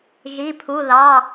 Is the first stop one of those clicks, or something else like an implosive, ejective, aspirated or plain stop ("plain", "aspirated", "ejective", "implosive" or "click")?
aspirated